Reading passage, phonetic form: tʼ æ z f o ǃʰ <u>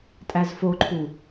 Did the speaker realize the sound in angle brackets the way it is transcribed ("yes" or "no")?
yes